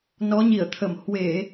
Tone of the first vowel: rising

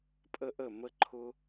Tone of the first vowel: high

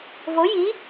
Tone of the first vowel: rising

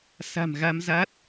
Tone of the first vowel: low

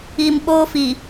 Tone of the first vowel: low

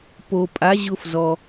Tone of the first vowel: low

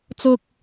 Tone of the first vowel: low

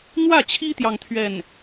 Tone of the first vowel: falling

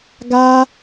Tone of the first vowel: high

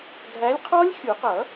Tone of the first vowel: rising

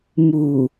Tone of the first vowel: low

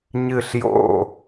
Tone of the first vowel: falling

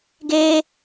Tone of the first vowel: high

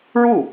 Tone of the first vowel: falling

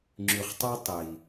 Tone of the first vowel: low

